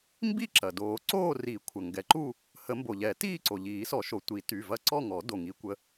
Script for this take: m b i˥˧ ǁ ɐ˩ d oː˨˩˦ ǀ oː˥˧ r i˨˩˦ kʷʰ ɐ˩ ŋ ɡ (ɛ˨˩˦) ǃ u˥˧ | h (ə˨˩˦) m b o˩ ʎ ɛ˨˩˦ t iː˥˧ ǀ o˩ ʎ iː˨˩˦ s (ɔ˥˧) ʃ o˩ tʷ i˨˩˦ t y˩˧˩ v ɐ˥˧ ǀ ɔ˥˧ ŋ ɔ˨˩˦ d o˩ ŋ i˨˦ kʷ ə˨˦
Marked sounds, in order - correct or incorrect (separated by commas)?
correct, correct, incorrect